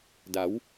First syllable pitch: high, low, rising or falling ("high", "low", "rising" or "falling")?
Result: rising